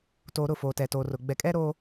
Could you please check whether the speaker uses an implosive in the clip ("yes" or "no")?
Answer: no